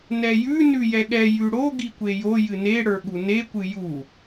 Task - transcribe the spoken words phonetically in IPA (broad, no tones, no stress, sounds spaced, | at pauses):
n ɛ j ʉ n ʉ j ɛ ɠ ɛ j ʉ ɽ o ɡ i kʷ e j o j ɨ n e ɽ ə˞ ɠ u n e kʷ ɨ j u